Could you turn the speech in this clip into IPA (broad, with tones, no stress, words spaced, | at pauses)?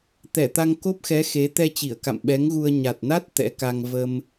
t̪ɛ˧˩t̪a˧ŋ ko˦˥p̚xɛ˨˦ xe˨˦ t̪ɛ˧t͡ɕi˧˩ə̯ka̰˧˨m ɓɛ˨˦ŋɣu˧ə̯ ɲa˨˩t̚na˦˥t̚ t̪ɛ̰˧˥ka˧ŋ və˧m